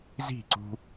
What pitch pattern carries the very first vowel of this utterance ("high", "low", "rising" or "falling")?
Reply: falling